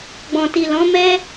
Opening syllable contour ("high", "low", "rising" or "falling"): low